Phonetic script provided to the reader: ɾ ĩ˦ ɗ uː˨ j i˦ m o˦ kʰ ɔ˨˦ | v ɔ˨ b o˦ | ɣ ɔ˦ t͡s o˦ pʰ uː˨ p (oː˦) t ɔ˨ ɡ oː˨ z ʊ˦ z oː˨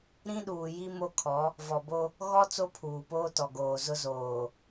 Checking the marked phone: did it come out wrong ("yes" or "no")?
no